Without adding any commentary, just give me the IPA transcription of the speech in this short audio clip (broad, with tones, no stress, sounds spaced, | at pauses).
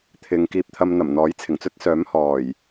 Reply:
t̪ʰ ɪ˨ ŋ k iː˧ p̚ t̪ʰ ɐ˧ m n̪ ɐ˨˩ m n̪ ɔː˨˥ j t͡sʰ ɪ˨˩ ŋ t͡s ɵ˥ t̚ s œː˨˥ m h ɔː˨˩ j